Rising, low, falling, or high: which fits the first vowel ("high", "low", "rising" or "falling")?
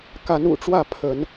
rising